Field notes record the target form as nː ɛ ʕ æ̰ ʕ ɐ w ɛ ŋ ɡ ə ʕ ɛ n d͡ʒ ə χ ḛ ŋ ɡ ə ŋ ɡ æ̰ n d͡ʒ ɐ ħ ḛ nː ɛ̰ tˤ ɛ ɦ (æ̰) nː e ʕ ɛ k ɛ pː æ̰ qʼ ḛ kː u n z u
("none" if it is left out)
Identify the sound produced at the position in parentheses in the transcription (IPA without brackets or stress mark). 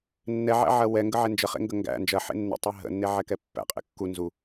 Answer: ə̰